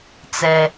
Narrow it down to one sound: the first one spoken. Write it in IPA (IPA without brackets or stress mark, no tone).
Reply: t͡s